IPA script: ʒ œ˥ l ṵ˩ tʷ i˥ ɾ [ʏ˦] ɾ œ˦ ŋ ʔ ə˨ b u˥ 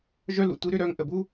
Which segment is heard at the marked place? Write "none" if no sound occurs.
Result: ʏ˦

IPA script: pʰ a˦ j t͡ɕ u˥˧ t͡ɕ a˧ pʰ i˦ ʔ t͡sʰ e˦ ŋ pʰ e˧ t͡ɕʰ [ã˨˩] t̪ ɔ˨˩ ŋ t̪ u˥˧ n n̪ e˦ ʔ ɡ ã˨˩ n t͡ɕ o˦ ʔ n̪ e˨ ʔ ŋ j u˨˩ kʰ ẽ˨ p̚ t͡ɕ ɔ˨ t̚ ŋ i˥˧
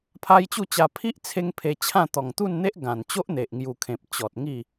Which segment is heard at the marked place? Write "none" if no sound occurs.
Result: ã˥˧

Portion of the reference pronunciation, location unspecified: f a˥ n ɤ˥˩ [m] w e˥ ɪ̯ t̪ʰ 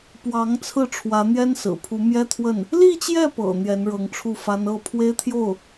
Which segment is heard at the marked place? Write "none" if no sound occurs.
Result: pʰ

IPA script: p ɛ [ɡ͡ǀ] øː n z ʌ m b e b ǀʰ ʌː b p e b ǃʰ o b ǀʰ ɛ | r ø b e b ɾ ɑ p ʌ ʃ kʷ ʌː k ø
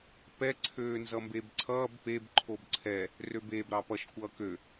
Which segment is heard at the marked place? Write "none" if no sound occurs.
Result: ǀʰ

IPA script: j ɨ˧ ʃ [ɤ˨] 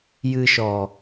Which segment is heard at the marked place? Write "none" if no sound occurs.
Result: ɔ˨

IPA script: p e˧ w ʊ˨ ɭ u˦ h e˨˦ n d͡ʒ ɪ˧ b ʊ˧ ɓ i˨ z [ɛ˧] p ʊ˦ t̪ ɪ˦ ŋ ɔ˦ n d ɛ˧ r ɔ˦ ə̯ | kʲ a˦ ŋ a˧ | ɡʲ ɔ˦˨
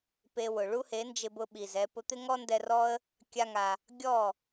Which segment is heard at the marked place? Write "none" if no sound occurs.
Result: ɛ˧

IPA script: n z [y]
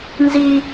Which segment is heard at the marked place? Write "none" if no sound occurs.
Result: i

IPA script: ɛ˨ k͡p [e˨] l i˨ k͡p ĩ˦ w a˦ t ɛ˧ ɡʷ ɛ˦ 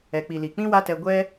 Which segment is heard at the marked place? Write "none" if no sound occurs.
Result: i˨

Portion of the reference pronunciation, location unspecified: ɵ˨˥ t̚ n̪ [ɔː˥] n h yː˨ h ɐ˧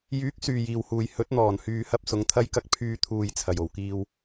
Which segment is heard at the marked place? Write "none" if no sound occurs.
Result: ɔː˨˩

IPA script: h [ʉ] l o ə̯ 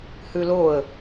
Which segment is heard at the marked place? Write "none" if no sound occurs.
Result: ʉ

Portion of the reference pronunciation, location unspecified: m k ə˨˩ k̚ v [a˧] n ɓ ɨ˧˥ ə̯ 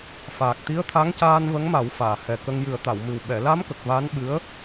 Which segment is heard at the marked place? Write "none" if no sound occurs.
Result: a˧˥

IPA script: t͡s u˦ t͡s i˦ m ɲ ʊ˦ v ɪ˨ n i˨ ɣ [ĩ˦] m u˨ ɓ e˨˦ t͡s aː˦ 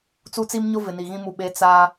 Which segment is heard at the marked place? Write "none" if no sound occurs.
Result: ĩ˦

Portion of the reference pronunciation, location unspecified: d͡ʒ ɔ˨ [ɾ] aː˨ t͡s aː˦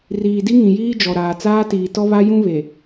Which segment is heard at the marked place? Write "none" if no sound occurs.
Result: ɾ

